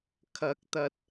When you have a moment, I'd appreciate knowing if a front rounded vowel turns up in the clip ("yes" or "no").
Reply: no